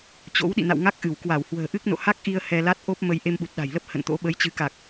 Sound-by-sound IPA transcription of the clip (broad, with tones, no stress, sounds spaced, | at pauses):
t͡ɕ o̰˧˥ w ɗ ḭ˧˨ n a̰˧˨ w ŋ a˦˥ k̚ ʔ ɨ˧˩ w k w a˧˩ w h w ə̤ː˨˩ ʔ ɨ˦˥ k̚ n o̰˧˨ h a˦˥ k̚ ʔ i˧ ə̯ h ɛ˧ l a˦˥ t̚ ʔ o˦˥ p̚ m ə˧ j ʔ e˧ m ɓ u˨˩ t̚ ɗ a̤˨˩ j l ə˦˥ p̚ h ə̰˧˨ n t̪ o̰˧˥ ɓ ə˨˦ j t͡ɕ ɨ˨˦ k a˨˩ k̚